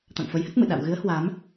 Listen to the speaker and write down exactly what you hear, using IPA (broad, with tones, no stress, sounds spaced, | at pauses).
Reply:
t̪ a̰˧˨ ŋ f ə˨˦ j h ə˦˥ t̚ m ɨ̰˧˨ ɗ a̰˧˨ w ɣ ɨ˨˦ ə̯ h w a˨˦ m